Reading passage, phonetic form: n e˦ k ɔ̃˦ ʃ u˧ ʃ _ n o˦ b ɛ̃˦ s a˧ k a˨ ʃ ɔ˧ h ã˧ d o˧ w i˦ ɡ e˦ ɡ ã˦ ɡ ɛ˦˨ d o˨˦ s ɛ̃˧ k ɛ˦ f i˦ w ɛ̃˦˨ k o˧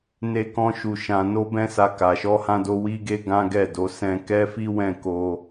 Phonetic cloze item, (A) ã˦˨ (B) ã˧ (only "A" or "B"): B